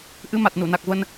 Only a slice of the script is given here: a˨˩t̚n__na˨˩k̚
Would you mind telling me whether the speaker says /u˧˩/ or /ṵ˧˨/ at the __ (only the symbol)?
u˧˩